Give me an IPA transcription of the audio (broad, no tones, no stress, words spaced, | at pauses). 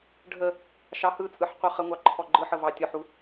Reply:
ɖʱə | ʃɑhɯt͡sʼɯħ qʷɯχəŋʷɑ ǃʰɔɡ͡ǃɯħə vɑtʲɔħu